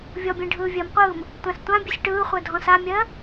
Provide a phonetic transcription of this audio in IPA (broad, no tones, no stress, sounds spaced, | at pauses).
vʲ ɔ bʲ ẽ ɖʱ ɯː vʲ ɜ m qʷ ɯː m | tʷ ã s tʷ ã bʲ ɯ sʲ ʈ ɯː χʷ œ dʱ ɔ̃ s a mʲ ɜ